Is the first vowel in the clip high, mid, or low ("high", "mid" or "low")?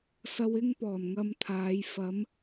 low